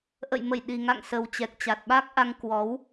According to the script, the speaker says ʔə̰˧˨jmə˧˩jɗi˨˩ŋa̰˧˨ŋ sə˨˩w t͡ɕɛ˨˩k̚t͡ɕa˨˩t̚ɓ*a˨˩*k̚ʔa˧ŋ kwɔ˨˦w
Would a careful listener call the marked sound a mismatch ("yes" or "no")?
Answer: yes